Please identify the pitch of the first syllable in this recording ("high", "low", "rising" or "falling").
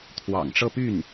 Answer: low